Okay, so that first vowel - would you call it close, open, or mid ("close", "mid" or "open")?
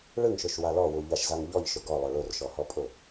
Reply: close